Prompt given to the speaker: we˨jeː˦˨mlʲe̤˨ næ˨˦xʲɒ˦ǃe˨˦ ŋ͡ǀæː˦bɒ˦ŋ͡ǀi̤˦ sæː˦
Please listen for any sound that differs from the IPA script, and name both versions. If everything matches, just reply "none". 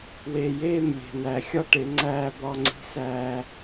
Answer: ǃ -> ʈ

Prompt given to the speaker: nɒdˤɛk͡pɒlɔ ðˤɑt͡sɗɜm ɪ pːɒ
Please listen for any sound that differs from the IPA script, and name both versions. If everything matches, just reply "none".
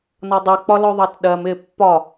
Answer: t͡s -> t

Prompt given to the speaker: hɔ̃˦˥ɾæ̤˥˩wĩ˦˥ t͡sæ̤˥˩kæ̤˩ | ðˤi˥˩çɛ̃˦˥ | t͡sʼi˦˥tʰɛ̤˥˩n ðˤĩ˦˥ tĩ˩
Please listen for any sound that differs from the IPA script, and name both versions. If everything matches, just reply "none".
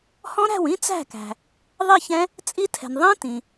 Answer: ɛ̤˥˩ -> ɛ̤˩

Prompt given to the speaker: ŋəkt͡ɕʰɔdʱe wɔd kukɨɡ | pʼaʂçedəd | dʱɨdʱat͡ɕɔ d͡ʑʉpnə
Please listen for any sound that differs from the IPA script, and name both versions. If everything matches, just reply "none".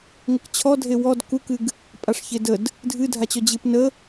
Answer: ʉ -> ɨ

